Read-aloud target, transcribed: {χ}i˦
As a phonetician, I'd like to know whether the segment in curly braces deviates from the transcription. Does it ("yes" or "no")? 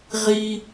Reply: yes